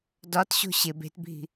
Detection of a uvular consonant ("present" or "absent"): absent